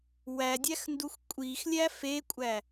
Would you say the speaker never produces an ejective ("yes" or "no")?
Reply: no